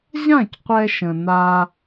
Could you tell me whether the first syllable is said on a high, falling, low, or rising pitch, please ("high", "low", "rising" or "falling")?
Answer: falling